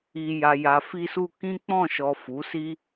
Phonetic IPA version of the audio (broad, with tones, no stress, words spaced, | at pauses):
i˨ja˨ja˨ fi˧su˧ kĩ˦k͡pɔ̃˦˨ʃɔ˨ fu˨˦ si˦